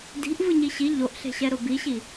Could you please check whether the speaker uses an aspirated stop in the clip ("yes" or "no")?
no